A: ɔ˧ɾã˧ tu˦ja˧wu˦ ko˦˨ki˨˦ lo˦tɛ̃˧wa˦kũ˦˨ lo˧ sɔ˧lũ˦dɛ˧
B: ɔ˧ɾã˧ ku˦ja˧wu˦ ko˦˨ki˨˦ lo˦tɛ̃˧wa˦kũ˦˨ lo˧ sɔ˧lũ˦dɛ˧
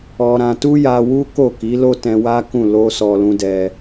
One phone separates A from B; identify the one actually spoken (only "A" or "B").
A